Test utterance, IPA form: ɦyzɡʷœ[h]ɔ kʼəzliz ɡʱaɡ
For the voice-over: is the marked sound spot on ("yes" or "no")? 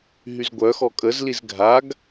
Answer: no